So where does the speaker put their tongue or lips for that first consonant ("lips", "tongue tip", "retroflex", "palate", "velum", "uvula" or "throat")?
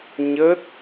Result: palate